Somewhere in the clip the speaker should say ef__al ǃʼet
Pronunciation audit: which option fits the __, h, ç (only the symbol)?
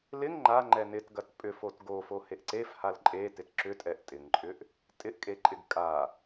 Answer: h